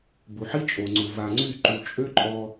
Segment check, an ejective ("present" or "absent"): present